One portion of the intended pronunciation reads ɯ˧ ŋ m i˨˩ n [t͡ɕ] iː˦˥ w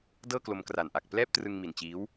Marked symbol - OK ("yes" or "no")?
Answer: yes